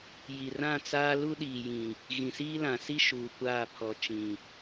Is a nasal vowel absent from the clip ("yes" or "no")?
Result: no